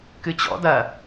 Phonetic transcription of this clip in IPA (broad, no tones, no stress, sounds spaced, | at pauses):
k ɨ t͡ɕ ɔ̰ d ɐ